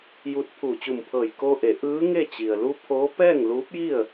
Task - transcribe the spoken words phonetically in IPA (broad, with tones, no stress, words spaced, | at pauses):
ju˧t̚ pʰuː˧˩t͡ɕu˧˩mpʰɤː˧˩j koː˧ʔe˩˧ ʔɯː˧˥ ŋe˥˨t͡ɕi˩ə̯ lu˧ pʰoː˧˥ pɛː˥˨ŋluː˧˥p̚ji˥˨ə̯